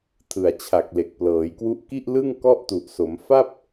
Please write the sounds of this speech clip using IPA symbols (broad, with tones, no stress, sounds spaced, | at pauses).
tʰ ɯ˨˩ a̯ t͡ɕʰ a˨˩ k̚ l e˨˩ k̚ p l ɤː˩˦ j k w u˥˩ ʔ k i˥˩ ʔ l ɯ˥˩ ŋ k ɔ˥˩ ʔ t u˨˩ ʔ s o˩˦ m f a˥˩ p̚